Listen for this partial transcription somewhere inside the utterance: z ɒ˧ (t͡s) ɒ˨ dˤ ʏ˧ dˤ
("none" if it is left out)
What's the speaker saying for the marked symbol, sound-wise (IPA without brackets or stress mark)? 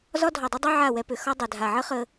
dʱ